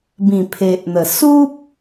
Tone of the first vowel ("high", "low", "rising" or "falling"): low